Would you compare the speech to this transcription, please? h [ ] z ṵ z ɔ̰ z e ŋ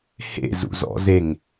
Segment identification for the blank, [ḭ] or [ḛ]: ḛ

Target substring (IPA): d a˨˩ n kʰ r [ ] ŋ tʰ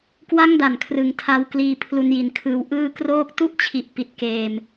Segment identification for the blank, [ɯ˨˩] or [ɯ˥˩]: ɯ˨˩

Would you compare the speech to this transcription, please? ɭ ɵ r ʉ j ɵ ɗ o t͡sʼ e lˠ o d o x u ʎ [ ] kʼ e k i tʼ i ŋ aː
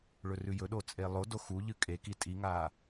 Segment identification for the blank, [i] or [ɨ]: ɨ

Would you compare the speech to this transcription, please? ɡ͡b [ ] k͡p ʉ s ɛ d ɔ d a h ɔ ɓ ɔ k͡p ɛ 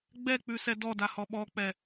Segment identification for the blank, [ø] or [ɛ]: ɛ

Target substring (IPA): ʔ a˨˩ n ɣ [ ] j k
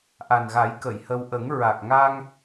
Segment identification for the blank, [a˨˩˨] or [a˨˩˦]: a˨˩˦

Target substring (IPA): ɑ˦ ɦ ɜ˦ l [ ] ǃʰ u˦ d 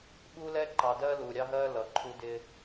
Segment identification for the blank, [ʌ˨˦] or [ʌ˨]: ʌ˨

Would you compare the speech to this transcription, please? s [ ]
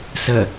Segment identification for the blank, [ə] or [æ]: ə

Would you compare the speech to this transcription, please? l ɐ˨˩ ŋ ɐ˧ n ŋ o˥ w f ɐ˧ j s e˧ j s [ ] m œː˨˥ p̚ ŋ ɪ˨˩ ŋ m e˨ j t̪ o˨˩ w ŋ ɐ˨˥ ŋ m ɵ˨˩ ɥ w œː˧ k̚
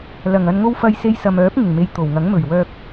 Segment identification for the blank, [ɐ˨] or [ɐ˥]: ɐ˨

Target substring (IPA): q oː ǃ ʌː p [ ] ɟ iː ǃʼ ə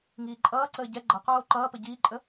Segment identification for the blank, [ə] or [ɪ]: ə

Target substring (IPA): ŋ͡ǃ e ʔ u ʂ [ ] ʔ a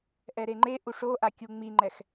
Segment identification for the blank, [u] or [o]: o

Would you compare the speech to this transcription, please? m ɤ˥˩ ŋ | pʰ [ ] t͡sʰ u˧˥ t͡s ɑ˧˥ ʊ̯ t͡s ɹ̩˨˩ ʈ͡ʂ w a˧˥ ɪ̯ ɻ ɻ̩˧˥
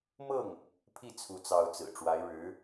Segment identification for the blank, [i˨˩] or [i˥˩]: i˥˩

